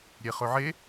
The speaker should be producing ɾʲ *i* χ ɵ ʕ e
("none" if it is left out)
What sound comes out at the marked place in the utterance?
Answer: e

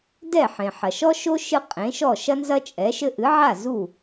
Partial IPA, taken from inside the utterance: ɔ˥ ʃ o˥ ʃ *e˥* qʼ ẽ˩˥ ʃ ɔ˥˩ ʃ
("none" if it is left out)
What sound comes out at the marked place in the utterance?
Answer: ɨ˥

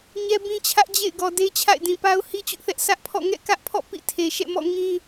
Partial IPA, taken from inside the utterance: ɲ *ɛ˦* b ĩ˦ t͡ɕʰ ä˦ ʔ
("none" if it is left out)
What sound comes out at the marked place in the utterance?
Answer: ɛ˦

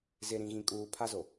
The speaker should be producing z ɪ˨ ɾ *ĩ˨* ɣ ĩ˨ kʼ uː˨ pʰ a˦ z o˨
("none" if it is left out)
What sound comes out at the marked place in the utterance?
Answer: ĩ˨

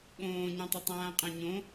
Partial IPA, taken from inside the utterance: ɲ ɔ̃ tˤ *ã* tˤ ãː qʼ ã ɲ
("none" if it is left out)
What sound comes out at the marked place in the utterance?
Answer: a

